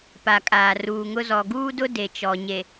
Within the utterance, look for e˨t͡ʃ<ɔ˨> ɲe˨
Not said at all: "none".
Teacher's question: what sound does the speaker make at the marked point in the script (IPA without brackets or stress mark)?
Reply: ɔ˨